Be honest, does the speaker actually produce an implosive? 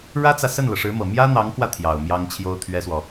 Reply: no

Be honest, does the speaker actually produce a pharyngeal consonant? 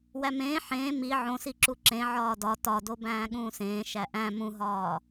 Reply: yes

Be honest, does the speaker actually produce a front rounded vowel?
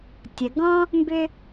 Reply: yes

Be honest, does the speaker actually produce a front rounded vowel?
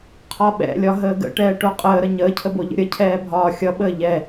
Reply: no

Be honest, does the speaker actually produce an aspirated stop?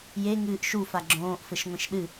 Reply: no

